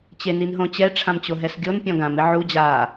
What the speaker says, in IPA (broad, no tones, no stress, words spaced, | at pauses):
t͡ɕeninɦõt͡ɕɛ ʈ͡ʂʰãmt͡ɕoɦɛsɡʲon pʲɔ̃ɡãmɪ ʕu d͡ʑa